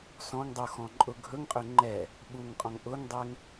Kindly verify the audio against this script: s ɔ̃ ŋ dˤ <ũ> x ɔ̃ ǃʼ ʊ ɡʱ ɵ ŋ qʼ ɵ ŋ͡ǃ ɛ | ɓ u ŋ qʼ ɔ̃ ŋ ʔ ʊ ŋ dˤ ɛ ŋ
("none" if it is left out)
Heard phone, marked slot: u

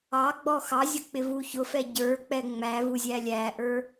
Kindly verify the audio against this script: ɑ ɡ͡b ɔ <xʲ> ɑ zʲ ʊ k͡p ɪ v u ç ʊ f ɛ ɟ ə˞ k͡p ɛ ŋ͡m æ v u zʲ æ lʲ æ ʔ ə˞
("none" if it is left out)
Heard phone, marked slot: x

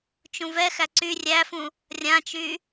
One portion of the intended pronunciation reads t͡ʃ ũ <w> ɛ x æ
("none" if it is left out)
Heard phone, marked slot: v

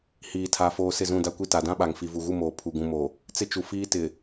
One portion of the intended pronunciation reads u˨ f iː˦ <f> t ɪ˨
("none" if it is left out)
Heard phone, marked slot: none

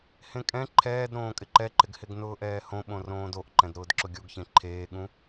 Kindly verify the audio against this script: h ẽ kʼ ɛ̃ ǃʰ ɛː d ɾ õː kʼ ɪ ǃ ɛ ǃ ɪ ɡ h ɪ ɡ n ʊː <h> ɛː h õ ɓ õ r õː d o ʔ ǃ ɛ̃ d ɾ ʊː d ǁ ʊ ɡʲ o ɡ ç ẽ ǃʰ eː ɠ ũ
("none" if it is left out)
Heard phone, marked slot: ʔ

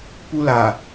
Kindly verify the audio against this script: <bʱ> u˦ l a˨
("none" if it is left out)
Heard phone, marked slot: p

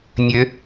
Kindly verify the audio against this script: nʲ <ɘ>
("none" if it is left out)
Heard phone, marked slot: ɘ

